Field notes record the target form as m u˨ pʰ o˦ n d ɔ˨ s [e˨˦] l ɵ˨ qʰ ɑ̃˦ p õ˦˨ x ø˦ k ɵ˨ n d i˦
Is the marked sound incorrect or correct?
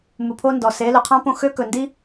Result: correct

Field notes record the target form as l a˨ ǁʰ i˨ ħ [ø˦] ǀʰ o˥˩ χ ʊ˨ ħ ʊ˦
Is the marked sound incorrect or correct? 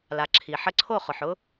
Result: incorrect: ə˦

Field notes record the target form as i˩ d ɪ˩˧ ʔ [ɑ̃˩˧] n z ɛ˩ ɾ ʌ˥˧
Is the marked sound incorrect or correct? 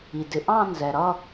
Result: incorrect: ɑ̃˥˧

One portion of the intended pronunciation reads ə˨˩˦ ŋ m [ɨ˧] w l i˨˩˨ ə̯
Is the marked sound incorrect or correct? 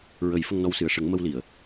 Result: incorrect: ə˧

